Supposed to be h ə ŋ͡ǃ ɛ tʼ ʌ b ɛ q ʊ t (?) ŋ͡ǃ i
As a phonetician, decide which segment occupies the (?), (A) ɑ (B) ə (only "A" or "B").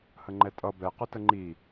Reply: B